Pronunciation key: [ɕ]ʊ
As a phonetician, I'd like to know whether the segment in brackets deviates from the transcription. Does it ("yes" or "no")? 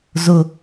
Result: yes